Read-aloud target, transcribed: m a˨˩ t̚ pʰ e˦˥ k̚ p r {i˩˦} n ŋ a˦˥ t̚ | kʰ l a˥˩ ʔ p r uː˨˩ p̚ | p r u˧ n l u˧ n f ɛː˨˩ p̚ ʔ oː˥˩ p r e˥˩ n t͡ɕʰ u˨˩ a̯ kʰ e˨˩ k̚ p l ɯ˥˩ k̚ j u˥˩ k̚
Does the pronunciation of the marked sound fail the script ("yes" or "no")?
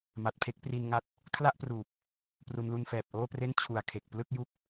yes